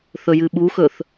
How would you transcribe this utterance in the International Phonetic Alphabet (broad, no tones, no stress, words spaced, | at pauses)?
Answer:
θɵjɨɓuxɵθ